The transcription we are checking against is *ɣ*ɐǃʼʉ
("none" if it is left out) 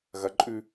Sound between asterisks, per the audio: ɣ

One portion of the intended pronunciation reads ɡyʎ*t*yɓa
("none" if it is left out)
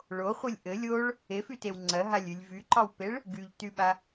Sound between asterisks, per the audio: t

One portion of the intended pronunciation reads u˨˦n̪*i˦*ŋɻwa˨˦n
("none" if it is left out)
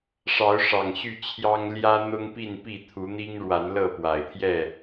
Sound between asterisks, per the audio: i˦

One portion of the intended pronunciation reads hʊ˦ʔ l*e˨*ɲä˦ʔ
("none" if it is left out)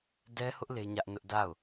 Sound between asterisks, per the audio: e˦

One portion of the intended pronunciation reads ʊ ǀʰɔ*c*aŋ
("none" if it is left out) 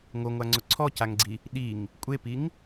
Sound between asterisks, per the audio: c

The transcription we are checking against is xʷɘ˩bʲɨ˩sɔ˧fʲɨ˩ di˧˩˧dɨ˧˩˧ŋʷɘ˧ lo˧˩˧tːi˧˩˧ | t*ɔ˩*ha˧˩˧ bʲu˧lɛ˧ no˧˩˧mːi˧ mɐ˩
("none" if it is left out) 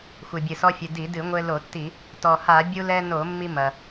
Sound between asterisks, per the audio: ɔ˩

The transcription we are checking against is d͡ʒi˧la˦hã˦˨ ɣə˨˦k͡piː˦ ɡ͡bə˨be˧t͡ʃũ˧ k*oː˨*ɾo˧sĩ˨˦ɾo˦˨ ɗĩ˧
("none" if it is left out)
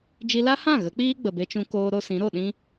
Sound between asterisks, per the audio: oː˧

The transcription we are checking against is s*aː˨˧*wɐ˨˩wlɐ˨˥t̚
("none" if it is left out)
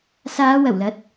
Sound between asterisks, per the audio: aː˨˧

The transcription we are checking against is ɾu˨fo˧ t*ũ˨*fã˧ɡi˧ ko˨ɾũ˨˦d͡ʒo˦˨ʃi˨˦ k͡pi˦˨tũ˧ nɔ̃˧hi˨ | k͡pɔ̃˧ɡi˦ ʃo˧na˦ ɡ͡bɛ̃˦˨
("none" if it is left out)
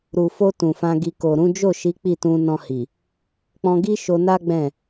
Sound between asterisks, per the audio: ũ˨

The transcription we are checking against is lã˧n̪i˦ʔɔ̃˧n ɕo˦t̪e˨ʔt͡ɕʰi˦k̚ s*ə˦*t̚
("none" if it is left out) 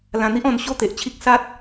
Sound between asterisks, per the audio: a˦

